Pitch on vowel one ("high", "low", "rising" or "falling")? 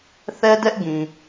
high